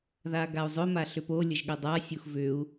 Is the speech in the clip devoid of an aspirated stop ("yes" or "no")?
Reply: yes